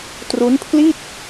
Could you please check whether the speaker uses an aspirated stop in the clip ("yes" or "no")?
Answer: yes